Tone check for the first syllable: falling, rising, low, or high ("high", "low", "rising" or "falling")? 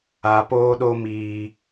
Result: low